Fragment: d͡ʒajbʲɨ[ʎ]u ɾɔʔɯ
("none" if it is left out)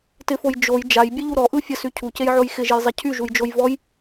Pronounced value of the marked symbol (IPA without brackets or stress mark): ʎ